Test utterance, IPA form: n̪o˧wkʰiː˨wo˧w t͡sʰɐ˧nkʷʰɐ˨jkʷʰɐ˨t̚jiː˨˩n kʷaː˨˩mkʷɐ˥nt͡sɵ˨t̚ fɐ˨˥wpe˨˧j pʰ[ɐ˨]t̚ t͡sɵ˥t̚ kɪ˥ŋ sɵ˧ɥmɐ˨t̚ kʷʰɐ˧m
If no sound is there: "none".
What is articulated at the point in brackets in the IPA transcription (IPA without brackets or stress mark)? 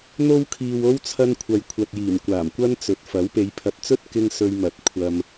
ɐ˧